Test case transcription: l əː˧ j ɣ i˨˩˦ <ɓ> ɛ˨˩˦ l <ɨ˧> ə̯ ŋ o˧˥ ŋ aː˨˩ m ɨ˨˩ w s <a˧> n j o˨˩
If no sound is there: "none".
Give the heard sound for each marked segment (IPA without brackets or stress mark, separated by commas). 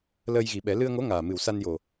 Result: ɓ, ɨ˧, a˧